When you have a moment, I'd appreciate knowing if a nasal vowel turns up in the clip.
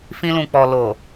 yes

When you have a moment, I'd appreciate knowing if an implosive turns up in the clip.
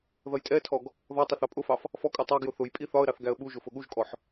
yes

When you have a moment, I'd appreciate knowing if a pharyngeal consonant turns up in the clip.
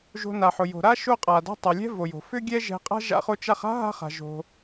yes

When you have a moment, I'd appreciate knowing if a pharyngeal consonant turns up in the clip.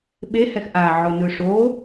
yes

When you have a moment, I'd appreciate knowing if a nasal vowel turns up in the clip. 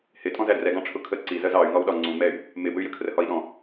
yes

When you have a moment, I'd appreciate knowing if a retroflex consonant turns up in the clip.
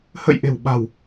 no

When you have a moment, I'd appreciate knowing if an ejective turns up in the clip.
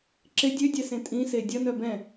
yes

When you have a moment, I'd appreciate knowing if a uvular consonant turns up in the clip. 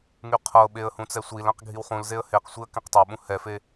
yes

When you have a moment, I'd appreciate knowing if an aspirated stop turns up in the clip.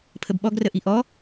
yes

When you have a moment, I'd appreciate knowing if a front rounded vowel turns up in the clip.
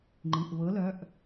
yes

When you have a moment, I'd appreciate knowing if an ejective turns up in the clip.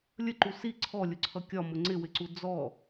no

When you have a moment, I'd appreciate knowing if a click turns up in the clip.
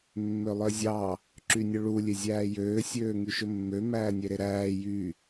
yes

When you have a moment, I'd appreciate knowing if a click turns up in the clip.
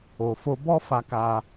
no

